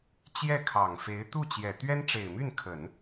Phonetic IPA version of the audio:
t͡ɕjɛ˥˩ kʰɑ˨˩ŋ fe˧˥ɪ̯ t̪u˥˩t͡ɕjɛ˨˩ t̪ɥɛ˥nʈ͡ʂe˨˩ɪ̯my˥˩nkʰə˨˩˦n

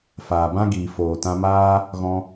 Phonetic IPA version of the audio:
faː˨bã˦ɡiː˨ foː˨tã˧maː˦ | ɣɔ̃˧

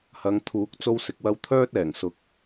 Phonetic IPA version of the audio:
hɐ˨˧ŋt̪ʰuː˨˥k̚ t͡so˧wsɪ˨k̚wɐ˧w t̪ʰœː˥t̚ɛː˨˩ŋsʊ˨˥k̚

